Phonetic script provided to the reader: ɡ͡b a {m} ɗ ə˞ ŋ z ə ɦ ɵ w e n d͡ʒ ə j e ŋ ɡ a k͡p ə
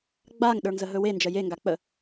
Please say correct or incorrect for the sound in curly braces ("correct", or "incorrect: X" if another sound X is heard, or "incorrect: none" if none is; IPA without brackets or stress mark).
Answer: incorrect: ŋ